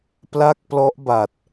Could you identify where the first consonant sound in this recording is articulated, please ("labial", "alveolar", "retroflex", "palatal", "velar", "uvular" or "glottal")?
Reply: labial